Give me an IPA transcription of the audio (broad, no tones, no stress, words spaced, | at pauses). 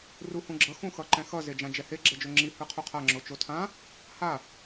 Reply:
ruhũɡ͡ǁʌ xũxʌǃɛ̃xʌ zed͡ʒãd͡ʒɛhe ɡ͡ǁɛd͡ʒoŋ͡ǁi hɯqʰuqʰa ŋ͡ǁot͡ʃotʰã | ha